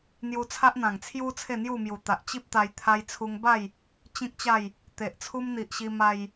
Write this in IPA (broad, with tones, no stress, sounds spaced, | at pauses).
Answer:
n̪ j u˧ t͡sʰ a˦ ʔ n̪ ã˨˩ ŋ t͡sʰ j u˦ t͡sʰ e˥˧ n̪ j u˥˧ m j u˨˩ t̪ a˨ ʔ t͡ɕ i˦ p̚ t̪ a˧ j t̪ʰ a˧ j t͡sʰ u˧ ŋ b a˥˧ j | t͡ɕ ĩ˦ k̚ t͡ɕ a˥˧ j | t̪ e˨ ʔ t͡sʰ u˦ m n̪ i˨ ʔ ɕ i˧ m a˧ j